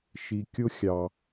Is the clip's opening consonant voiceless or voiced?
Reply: voiceless